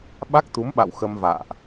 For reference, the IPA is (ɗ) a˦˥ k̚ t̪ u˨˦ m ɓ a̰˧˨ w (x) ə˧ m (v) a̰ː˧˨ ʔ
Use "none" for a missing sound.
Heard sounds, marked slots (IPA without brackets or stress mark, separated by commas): ɓ, x, v